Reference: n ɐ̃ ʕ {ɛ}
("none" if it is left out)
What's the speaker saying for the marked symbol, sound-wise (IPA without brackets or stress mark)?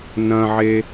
e